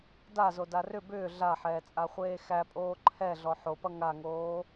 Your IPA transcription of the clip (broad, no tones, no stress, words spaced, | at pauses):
dazo darʏ bʏː ɮaħɛːt͡sʼaχʷeː xæpʼoː ǃʰɛ ɮɔħopʌ ŋaŋoː